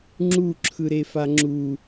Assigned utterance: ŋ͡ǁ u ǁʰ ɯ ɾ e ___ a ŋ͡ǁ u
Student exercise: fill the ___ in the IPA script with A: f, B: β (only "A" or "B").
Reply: A